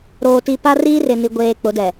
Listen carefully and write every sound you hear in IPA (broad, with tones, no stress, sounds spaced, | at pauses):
ɾ oː˨ t i˨ p a˦ r iː˦ r ɪ˨ n i˨ ɡʷ eː˨ k͡p ʊ˨˦ d ɛ˨